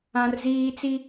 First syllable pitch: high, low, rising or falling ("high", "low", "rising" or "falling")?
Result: high